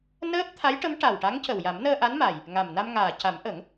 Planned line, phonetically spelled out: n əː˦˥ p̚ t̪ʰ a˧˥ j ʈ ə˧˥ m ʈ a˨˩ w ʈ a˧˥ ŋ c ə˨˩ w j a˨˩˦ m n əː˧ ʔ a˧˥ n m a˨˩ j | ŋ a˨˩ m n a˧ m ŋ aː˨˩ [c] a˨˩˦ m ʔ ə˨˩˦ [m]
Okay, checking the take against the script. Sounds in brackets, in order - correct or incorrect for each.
correct, incorrect

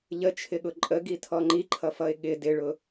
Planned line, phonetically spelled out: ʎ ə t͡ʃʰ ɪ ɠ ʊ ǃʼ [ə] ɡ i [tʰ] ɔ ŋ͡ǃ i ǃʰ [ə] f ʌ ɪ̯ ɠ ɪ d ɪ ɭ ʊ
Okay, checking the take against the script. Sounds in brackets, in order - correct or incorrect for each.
correct, correct, incorrect

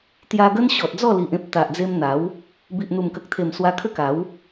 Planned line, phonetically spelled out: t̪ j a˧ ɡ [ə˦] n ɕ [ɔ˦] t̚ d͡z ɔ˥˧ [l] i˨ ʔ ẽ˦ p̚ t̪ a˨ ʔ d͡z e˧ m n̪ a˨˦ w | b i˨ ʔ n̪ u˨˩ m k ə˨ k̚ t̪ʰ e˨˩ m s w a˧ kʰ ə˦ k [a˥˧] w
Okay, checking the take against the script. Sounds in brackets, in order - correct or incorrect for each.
correct, incorrect, correct, incorrect

